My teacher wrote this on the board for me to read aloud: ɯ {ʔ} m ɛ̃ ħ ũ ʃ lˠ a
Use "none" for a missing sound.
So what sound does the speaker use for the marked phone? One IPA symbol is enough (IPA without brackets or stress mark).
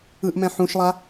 ʔ